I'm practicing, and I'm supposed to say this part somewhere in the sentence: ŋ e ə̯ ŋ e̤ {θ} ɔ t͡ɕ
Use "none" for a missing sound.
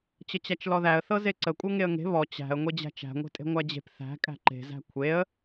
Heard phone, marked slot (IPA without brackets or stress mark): β